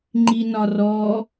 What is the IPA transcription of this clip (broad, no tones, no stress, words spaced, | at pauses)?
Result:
ŋ͡ǃinɒrɔ